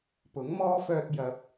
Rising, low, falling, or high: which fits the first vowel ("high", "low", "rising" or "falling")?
rising